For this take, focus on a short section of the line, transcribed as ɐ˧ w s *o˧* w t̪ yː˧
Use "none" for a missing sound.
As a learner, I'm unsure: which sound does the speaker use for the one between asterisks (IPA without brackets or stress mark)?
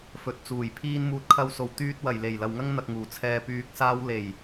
o˨˩